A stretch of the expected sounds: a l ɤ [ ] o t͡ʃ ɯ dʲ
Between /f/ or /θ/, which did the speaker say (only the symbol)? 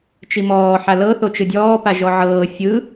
θ